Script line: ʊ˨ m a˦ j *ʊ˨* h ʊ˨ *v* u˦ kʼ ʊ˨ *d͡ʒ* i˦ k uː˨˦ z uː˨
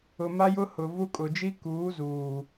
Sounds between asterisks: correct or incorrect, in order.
incorrect, correct, correct

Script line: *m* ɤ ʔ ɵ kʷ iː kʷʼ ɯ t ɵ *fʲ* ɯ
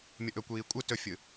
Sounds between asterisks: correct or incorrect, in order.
incorrect, correct

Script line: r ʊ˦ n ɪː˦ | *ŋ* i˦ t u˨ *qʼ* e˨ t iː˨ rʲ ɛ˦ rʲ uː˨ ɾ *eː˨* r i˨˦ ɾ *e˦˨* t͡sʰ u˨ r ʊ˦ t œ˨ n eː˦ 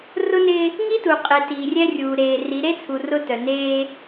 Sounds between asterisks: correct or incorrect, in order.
correct, correct, correct, incorrect

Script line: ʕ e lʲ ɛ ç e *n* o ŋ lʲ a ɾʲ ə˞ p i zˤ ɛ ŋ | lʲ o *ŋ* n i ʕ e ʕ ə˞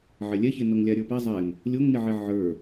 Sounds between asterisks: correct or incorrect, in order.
correct, correct

